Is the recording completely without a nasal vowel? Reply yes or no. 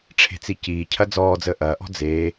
yes